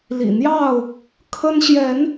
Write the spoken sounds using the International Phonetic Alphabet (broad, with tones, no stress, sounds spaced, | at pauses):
l ḭ˨˩ n̪ j ɑ˥˨ ʊ̯ | kʰ ə˦ n ɕ j ɛ˨˦ n